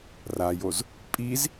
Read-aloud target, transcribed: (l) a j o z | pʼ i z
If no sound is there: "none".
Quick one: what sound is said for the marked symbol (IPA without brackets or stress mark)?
r